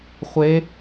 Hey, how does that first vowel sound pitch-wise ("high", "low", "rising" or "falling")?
rising